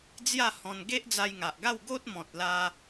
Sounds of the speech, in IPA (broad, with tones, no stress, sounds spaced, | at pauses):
d͡z j a˥˧ h ɔ̃˧ n ɡ e˦ ʔ d͡z a˧ j ŋ a˨ ʔ ɡ a˥˧ w ɡ o˦ t̚ m ɔ̃˨ t̚ l a˧